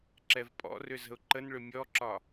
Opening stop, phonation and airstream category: click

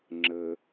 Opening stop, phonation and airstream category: click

